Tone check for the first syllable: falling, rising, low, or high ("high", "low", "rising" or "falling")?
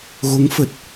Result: rising